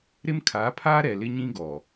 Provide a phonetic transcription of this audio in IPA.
ɾɪ˦mkʰaː˨˦pʰaː˦ ɾɛ˨lɪ˦ɲĩ˦ ɡɔ˨

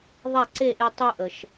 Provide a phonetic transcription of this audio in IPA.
ðˤa˥˩ǀe˥˩ʔe˧ tˤu˧ʔə˩ʃ

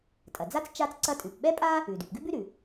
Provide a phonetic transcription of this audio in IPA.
tʼɐ˩d͡za˥t͡s t͡ʃa˥t͡sǀɐ˥ tʼʉ˩pɓɛ˥pʼa˥ | ʉ˩dʉ˩p ɡʉ˥bʉ˥ɾʉ˩

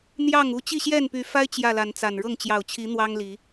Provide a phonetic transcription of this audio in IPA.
n̪jɑ˥˨ŋu˥˨ t͡ɕi˥˨ɕjɛ˥˨npy˨˦fa˦ɪ̯ t͡ɕjä˥˨la˨˦nt͡sa˨˩n ɻɤ˥˨ŋt͡ɕjɑ˨˩ʊ̯t͡ɕʰi˨˦ n̪wɑ˦ŋli˨˦

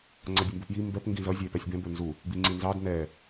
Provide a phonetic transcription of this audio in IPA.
ŋ͡ǀʌbʲʊmbʊpji mbɛp ŋɡĩzʌ zʲæpɛsʲbɛ̃ bə˞nzu | biŋ͡ǀĩnzɑd nɛ

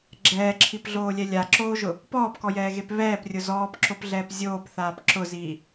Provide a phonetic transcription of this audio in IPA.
ɡ͡ǁɛːǁʰipɮoːlʲɛ lʲaǁoːʒʊ | pɔːpkɔjɛːɣep βɛːprʲʊ zɔːpǁopɮɛːp zʲoːpθaːp ǁʊziː

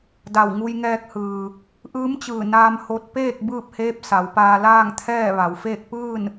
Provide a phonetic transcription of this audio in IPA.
da˧˩wŋu˧jŋɛː˧k̚hɯː˩ | ʔɯː˧˥mt͡ɕɯː˧˩ naː˧mho˧t̚peː˥˨k̚ bɯː˥˨p̚heː˧˥p̚ sa˩˧wpaː˧ laː˥˨ŋt̪ʰɛː˥˨ʋa˩˧wfeː˥˨k̚ pɯː˥˨n

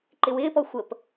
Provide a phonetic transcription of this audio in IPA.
ǃɪwɪːpɔ xʷəp

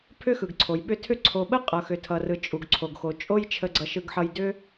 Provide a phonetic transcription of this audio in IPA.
pʰʏ˥xɯ˩ɡǀʰo˩jɓʏ˦ tʰʏ˥ ǀʰo˨ɓə˥ qʼʌ˨xʏ˨tʰʌ˨rɯ˨ t͡ʃʼu˩ɡǀʰo˩ɡxo˩ t͡ʃʼo˥j t͡ʃʰə˨ɡ͡ǀʌ˨ʃɯ˨ɡħʌ˨j dʏ˦

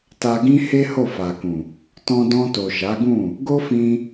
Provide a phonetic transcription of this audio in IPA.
ta˧ɡĩ˦he˦ ho˦˨fa˨kũ˨ | tɔ̃˧dɔ̃˧to˨ ʃa˨˦ɡũ˦˨ | ɡo˦fĩ˧

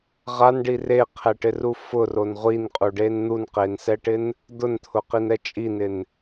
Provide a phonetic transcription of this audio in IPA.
ʁanɖi reqʰɛʈɪru fʊron ʁʷinqʼuɖen n̪unqensɛʈɪn | d̪ʊnt̪ʰʊqinɛ t͡ʃʼinɪn

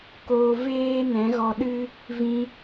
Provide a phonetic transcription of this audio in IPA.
koː˧ veː˦ nɛ̃˨˦ɣɔ˧ɗɨ˦ | vĩ˧

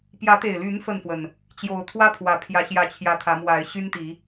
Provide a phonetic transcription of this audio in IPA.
pjä˨˦t̪e˨˩ɪ̯ly˨˦n fə˥˨nfwə˨˩n | t͡ɕjo˨˩ʊ̯t̪ʰwä˦pʰwä˨˩ pʰjä˨˦ɕjä˨˦t͡ɕʰjä˨˩ t̪ʰä˨˦mwa˨˦ɪ̯ɕy˦nt̪i˨˦

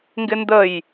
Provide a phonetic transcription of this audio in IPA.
ŋɡɪndəj

